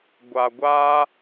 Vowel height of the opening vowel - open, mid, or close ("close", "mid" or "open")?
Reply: open